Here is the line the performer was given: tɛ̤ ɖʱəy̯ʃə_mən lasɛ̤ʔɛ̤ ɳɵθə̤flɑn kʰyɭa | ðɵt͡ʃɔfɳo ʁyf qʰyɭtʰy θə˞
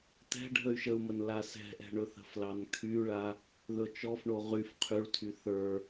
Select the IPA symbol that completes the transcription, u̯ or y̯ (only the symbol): u̯